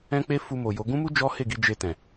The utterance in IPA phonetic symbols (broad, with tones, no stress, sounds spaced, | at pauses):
ɛ̃˦ k͡p e˦ f u˧ m o˨ j o˨˦ ɡ ũ˦ m u˦ d͡ʒ ɔ˦ h e˦˨ ɡ i˧ d͡ʒ e˧ t ɛ̃˨